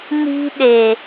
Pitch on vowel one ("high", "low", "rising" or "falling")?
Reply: high